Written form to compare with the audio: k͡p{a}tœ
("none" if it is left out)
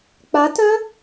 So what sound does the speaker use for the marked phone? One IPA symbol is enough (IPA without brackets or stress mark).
a